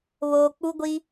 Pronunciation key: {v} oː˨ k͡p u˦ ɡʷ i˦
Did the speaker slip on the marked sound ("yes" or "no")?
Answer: yes